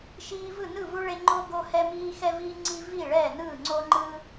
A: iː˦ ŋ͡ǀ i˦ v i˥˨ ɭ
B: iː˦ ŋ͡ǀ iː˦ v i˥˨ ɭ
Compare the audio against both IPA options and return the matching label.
A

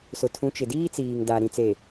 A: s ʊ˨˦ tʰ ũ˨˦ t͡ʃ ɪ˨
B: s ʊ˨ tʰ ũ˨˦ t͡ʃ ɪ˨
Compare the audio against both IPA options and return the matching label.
B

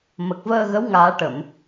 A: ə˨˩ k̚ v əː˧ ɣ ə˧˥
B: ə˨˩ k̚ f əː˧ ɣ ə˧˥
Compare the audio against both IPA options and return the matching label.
A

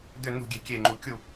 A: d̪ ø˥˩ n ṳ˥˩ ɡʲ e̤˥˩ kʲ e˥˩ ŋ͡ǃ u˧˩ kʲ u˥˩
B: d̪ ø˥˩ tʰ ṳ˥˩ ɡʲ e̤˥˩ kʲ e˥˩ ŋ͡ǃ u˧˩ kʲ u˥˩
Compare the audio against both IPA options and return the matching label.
A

